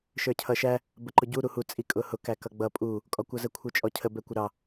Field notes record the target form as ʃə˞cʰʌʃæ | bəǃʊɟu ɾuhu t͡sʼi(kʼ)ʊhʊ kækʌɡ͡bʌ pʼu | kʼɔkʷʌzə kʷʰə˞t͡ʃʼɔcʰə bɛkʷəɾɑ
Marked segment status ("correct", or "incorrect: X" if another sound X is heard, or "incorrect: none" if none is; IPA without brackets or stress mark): correct